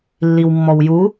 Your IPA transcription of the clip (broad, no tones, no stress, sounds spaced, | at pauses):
lː i w mː ɔ w j u